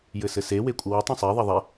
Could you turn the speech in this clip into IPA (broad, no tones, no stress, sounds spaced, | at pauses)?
j ɘ s ɘ s e w e kʷʼ ə w ɘ tˤ ẽ sˤ e ðˤ ɛ ðˤ e